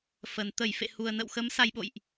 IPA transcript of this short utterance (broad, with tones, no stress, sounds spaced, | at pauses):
f ə˨˩ n t̪ ə˧˩ j f ḛ˧˨ h u˨˩ ə̯ n ə̰˧˨ w x ə˨˦ m s a˧ j ɓ o̰˧˨ j ʔ